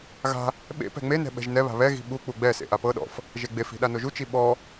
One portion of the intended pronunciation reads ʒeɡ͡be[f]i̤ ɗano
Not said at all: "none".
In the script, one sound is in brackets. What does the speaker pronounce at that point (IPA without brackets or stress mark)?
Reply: f